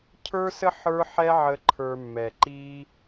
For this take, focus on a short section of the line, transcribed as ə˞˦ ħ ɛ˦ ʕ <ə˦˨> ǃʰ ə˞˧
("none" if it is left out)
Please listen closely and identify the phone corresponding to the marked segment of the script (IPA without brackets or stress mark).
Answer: ə˧